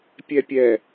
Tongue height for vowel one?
mid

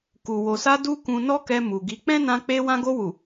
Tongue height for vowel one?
high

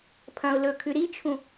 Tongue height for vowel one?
low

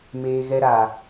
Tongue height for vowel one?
mid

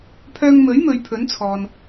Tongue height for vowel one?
mid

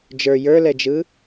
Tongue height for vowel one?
mid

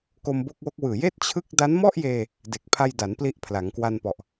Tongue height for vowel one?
mid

